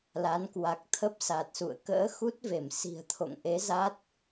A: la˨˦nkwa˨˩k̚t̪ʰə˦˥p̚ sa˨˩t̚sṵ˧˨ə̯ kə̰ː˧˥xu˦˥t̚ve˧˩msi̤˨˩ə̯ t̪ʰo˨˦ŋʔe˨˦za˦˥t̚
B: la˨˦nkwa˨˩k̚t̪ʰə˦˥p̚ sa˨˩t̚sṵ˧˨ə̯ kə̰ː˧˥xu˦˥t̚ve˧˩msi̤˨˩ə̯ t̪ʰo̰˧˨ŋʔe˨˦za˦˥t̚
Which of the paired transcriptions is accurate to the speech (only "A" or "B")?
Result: B